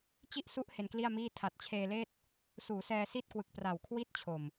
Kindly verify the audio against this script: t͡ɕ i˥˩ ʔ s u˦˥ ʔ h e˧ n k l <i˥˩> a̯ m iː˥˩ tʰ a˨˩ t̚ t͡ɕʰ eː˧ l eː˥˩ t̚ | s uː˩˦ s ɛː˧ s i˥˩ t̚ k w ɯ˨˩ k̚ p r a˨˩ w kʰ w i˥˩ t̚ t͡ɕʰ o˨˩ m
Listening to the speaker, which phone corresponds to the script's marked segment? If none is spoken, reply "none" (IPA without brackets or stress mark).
i˥˩